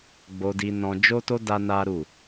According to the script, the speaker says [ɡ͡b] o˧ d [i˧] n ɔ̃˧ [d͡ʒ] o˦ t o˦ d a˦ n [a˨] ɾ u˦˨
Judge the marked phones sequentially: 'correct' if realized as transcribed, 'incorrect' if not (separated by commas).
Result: correct, correct, correct, incorrect